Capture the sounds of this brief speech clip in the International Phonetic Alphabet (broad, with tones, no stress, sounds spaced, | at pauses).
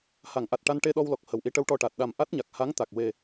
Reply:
h a˨˩˨ ŋ ʔ a˨˩ t̚ ʈ a˧ n ʈ e˧ ɗ ɔ˧ w l ɔ˨˩ k̚ h ə˨˩ w ʔ i˧˥ ʈ ə˧˥ w ʈ ɔ˧ ʈ a˨˩ t̚ ɗ a˨˩ m ʔ a˦˥ t̚ ɲ a˨˩ k̚ h a˧˥ ŋ t̪ a˨˩ k̚ w e˨˩